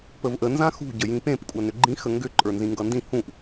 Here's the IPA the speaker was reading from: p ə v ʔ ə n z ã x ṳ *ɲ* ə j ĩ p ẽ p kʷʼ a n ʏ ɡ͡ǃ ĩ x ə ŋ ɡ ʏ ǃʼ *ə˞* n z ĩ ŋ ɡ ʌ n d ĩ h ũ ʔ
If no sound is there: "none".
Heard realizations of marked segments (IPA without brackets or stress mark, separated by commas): ɟ, ə˞